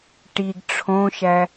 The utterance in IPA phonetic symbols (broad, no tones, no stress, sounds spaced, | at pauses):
ʈ i ɡ ʈ͡ʂʰ õ ʃ æ